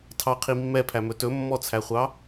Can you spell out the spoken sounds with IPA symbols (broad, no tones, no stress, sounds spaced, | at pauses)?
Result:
tʰ ɑ qʰ i mː ɛ pʰ æ m ɵ t ɵ mː ɔ t͡sʰ æ χʷ ɑ